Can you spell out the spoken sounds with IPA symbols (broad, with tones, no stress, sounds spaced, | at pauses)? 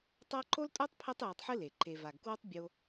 tˤ a˦ ǃ o˥ l tʼ o˥ tˤ pʰ ɛ˦ tˤ j e˨ tˤ ħ ɨ˦ l e˩ ǃ e˨ v a˨ ɡ k w o˥ tˤ bʲ o˦